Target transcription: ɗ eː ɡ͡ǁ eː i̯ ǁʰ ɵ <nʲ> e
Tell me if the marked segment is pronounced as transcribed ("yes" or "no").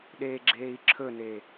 no